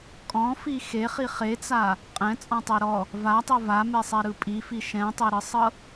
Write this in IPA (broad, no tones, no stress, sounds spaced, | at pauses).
kʼ ɔ̃ f i x e χ i χ e t͡s a | qʼ ɛ̃ t͡sʼ ɔ̃ tˤ e ɾ ɔ | v a tˤ o v a m e sˤ ɛ ɾ ɯ pʼ i f i ʃ ɛ̃ tˤ e ɾ ɯ sˤ ɤ